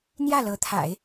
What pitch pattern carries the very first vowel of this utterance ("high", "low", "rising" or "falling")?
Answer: falling